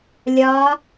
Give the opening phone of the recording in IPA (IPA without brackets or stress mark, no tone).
lʲ